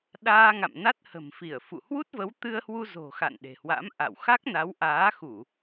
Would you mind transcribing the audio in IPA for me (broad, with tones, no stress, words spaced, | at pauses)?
ɗaː˧ŋa̰˧˨m na˦˥t̚hə̤˨˩mfi˧˩ə̯ fṵ˧˨hwu˦˥t̚və˨˦w t̪ɨ˧ə̯hwu˧zo̤˨˩xa̰˧˨n ɗe̤˨˩hwa̰˧˥m ʔa̰˧˨wxa˦˥k̚ na˨˦wʔaː˨˦xu˧˩˨